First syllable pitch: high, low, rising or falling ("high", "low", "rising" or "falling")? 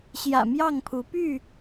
low